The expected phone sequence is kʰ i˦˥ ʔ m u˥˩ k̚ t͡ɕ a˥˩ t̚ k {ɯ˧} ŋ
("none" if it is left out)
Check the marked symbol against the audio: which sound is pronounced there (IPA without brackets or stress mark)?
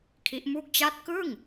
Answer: ɯ˥˩